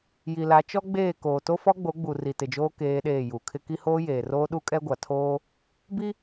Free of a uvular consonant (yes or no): yes